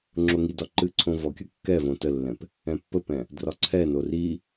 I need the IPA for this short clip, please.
ŋ͡ǁoŋidɒ ǃɨǀʰõvɔkʲə kːɛvõ təlːɛ̃p | ɛ̃pːəpɛ̃ | drɒǀʰɛno ri

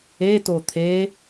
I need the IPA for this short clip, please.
e tot̪ʰe

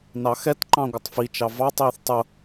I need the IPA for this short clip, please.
nɑxɛt ǃɑ̃ɡʷətˤfi t͡ʃɑvɑ tˤiːθtˤʊ

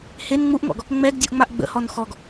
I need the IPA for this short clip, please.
hen ŋ͡muʔŋɔ̰ɡ | ŋ͡mɛɡdʲuʔŋ͡maʔ ɡ͡bə̰hɔn xɔɡ

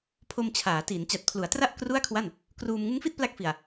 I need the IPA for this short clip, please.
pʰo˧mt͡ɕʰaː˩˦tiː˩˦n t͡ɕa˨˩t̚pʰlu˩˦a̯tra˥˩ʔ kru˥˩a̯kʰwa˥˩n | kruː˧m ŋɯ˦˥ŋfi˥˩t̚pla˦˥k̚fi˨˩a̯

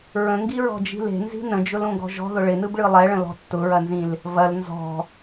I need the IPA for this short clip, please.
ɹə̃ŋɡiɹɔ̤d͡ʒi̤ le̤nzi̤ nə̃d͡ʒʊlõɡɔ̤ ʒɔ̤ðʊ ɭɪnɯbɭɯ lˠɛɭə̃lɔ̤ tːʊɹɐnzĩl | vɐl nzɔ̤

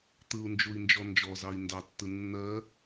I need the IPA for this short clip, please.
t̪ɯu̯nd͡ʒui̯nd͡ʒɔ nd͡ʒɔzɑi̯ ndɑtːɯ nːɜ

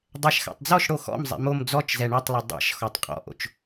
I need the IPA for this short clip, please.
dˤɛʃxa̰tˤd͡zɔʃɽo xɔ̰mzˤɛ̰ mom d͡zɔt͡ʃzɛ ɳɛtˤlˠo dˤɛ̰ʃ xɔtˤqʼɔ̰ʔo̰t͡ʃ

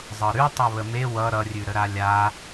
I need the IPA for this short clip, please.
zˤɤɾʉ tˤɤβəme wʌ ɾʌrʲʉɾə ɾalʲa

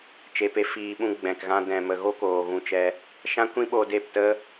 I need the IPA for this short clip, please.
t͡ʃe˧pe˦fiː˧ɓũ˦ ɡ͡bɛ̃˨kɣã˦ dɛ̃˨mə˨ɣo˦ koː˨ɣũ˧t͡ʃɛ˧ | ʃã˦kʷĩ˦ ɓo˧ de˦˨ptə˦

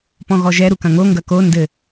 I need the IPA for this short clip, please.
pɔ̃ɣɔʒɛ ɾukɐ̃ŋo ŋɡɐko ndɘ

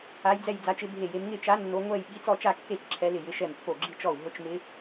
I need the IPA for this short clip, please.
a˧˥jd͡zɛ˥˧j d͡za˧˥t͡ʃɪ˧˥bʱe˥˩je˧˥m ŋɪ˥˧t͡ʃa˧˥ nːo˧˥ ŋʷɛ˥˧j ɓi˧˥t͡sɔ˥˧t͡ʃa˥˧kːe˥˩t͡ʃ ǁʰɛ˧˥lɪ˥˩jɪ˧˥ ʃɛ˥˩mpːo˥˩ ɡ͡ǁi˥˧t͡ʃɔ˥˩u̯ ɦʊ˧˥t͡ʃmɪ˧˥

